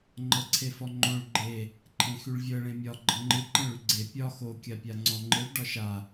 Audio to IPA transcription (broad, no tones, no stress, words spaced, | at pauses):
ŋ͡ǃɤǀʰefɔŋ͡ǃõɭ ɡ͡ǃe | ǃʰẽxyɭvʲɤ ɭẽmʲɒ ɡ͡ǃɤŋ͡ǃɯ ǃẽɭyɡ͡ǀe pʲɒ xo kʲapʲaŋ͡ǀɔ̃ ŋ͡ǃɯɭ ɖɒʃa